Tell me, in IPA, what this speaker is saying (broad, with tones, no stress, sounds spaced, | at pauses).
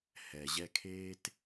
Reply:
h ɛ˩ ʑ ɛ˨ kʰ eː˦ t